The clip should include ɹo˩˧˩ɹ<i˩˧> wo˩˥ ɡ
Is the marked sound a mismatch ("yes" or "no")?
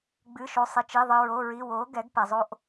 yes